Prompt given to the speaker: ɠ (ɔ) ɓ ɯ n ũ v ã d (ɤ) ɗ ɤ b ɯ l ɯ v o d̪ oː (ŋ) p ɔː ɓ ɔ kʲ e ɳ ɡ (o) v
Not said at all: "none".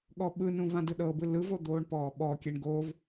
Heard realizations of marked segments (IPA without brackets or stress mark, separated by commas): ɔ, ɯ, ɳ, o